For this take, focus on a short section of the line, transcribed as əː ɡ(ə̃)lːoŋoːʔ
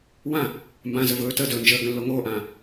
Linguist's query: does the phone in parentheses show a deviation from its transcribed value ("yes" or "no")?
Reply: no